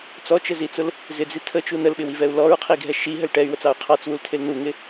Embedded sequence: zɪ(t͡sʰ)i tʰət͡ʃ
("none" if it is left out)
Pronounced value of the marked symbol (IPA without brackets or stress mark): d͡z